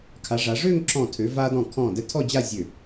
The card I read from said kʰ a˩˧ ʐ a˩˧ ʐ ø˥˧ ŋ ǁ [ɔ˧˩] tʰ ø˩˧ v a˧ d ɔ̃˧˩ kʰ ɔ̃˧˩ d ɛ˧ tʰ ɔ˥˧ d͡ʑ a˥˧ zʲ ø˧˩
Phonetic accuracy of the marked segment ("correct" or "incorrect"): incorrect